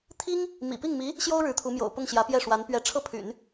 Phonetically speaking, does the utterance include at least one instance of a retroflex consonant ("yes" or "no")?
yes